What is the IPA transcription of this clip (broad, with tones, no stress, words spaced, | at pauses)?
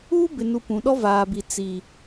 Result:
uː˦bɪ˨ nu˨ pũ˨ɗɔ˦ vaː˨bi˨ t͡si˨